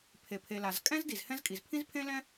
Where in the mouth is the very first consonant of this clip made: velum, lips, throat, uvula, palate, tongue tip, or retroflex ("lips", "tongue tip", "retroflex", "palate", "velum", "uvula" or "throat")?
lips